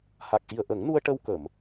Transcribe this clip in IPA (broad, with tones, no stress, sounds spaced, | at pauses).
h a˨˩ k̚ ʔ i˨˩ ə̯ ʔ ə˨˩˦ ŋ n u˧ ə̯ ʈ ə˧ w k ə˨˩˨ m